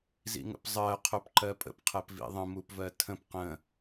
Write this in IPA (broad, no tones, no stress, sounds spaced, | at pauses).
z ḭ ŋ ə̰ p zˤ ɜ qʰ o p ǃ ɜ pʼ ə̰ p qʰ ɜ p v ḭ ðˤ ə̃ m u p v ɜ tʰ ə̃ p q ə̃